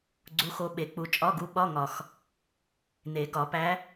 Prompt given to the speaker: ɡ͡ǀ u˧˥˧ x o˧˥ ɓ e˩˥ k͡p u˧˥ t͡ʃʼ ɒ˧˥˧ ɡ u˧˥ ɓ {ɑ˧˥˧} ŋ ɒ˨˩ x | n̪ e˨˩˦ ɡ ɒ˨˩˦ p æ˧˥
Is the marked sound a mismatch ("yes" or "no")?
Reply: yes